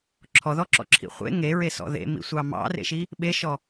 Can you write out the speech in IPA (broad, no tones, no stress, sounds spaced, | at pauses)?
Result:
ǁʰ ɔ ð ɔ ǁ ɔ̰ ǁʰ ḭ χʷ ḛ ŋ e ɹ e s ɔ̰ ð ḛ m ḭ sʷ ɑ m ɑ̰ r ḛ ʃ i | ɓ e ʃ ɔ